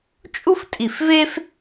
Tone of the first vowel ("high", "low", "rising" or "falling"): high